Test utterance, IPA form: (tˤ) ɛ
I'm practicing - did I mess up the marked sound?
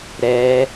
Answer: yes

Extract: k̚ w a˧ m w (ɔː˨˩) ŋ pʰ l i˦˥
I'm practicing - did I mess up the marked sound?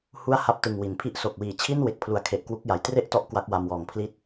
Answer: no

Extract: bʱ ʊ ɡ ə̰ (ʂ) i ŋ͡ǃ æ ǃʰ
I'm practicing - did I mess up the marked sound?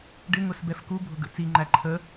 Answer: yes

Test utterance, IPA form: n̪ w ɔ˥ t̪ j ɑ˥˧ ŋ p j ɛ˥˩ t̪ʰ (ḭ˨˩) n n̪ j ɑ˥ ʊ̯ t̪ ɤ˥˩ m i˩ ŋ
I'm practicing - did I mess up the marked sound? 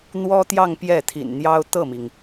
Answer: no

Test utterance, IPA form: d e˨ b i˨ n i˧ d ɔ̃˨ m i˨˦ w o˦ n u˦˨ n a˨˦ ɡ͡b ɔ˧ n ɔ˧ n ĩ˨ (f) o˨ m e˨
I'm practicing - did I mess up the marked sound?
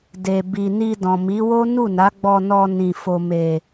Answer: no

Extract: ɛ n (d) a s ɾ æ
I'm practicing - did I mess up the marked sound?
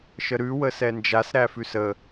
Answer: yes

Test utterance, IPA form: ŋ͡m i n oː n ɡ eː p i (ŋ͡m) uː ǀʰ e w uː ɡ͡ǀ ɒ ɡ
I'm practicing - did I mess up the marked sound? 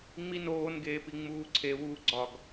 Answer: no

